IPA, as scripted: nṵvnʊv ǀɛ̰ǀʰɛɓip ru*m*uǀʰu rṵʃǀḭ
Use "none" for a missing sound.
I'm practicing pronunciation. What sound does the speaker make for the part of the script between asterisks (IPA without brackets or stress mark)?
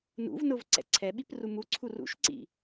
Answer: m